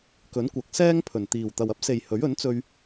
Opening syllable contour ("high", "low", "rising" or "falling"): rising